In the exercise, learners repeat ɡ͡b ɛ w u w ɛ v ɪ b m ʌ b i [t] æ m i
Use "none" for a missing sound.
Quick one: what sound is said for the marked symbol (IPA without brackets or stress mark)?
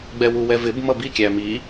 kʲ